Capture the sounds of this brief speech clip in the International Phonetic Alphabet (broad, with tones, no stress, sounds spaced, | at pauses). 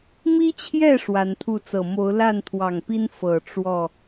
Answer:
m i˦ t͡ɕʰ j ɛ˥˨ ʂ w a˨˦ n t̪ʰ u˥˨ t͡s ɤ˨˩ m o˨˦ ʊ̯ l a˥˨ n t̪ʰ w ɑ˨˩ ŋ p i˦ n f ɤ˨˩ ʈ͡ʂ w ɔ˥˨